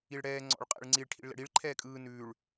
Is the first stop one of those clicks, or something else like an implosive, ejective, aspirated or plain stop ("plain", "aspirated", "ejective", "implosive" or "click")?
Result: click